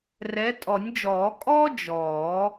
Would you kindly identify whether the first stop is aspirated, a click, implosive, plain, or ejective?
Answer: ejective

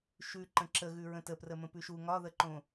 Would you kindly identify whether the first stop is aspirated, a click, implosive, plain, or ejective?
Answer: click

